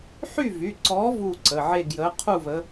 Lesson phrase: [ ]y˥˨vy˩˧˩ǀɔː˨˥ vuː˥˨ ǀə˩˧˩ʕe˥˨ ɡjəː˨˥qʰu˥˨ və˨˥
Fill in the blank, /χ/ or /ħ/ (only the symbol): ħ